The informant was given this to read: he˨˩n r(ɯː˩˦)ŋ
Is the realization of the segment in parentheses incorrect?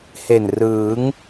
no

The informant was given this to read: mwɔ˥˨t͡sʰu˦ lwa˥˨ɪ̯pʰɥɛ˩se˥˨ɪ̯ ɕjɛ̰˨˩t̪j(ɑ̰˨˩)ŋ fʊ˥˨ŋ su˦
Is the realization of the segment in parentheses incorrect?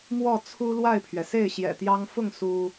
yes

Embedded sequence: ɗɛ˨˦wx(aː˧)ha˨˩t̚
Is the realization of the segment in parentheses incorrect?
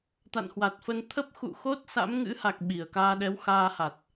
no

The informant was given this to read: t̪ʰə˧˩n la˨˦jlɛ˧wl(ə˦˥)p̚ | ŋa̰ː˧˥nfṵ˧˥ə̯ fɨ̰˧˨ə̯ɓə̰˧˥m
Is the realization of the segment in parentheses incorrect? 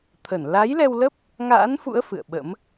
no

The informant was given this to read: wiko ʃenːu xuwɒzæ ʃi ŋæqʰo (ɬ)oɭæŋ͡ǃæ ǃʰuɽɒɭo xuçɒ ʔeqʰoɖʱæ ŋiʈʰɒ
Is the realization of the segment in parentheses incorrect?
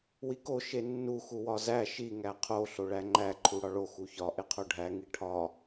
no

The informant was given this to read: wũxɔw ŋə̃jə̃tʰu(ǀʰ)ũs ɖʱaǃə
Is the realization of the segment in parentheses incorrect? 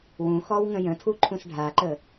yes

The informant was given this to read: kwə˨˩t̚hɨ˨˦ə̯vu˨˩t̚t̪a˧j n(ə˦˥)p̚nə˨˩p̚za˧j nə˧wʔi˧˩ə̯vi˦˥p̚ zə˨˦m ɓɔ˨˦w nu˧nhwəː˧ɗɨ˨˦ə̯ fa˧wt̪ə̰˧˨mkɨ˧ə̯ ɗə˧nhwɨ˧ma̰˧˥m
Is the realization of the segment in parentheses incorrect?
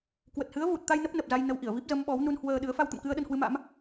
no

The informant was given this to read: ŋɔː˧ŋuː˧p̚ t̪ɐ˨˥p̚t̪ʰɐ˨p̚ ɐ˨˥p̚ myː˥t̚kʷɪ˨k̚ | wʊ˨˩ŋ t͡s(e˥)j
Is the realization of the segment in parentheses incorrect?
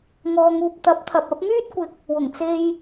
yes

